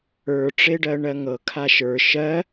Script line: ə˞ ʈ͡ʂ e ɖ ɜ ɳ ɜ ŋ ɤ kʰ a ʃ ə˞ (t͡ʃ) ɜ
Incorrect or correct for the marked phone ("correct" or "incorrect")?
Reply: incorrect